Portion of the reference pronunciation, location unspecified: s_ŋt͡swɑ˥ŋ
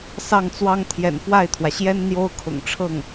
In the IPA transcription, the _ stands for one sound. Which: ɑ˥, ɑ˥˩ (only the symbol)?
ɑ˥˩